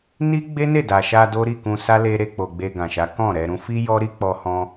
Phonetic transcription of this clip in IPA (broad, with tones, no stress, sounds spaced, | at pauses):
n i˦ ɡ͡b e˦ n e˦˨ d a˨ ʃ a˧ d o˦ ɾ i˦˨ k ũ˧ s a˦ l e˦ ɾ e˧ k͡p o˨ ɡ͡b e˧ ɡ ã˨ ʃ a˨˦ k ɔ̃˦˨ ɾ ɛ˧ ɾ ũ˧ f i˦ j ɔ˦ ɾ i˦ k͡p ɔ˦ h ɔ̃˦